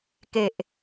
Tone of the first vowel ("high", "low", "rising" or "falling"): low